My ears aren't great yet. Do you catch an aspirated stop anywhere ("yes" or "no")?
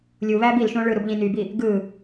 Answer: no